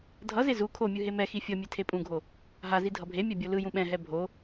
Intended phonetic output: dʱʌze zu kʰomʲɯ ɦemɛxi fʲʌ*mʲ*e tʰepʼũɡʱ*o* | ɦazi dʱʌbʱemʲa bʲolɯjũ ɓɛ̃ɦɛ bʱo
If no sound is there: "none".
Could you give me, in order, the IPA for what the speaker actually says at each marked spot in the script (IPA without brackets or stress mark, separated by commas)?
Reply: mʲ, o